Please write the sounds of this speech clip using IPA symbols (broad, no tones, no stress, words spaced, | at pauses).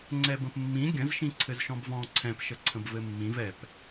ŋ͡ǀɛbə̃pmːĩ ɡʲə̃z ʃĩǀʰɘzʃɔ̃bvɔ̃ ǀʰɛ̃p ʃəǀʰə̃bvɘmːĩv ɛp